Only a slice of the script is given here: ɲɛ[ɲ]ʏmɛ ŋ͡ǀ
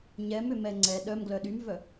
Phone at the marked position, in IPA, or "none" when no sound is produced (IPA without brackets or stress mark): m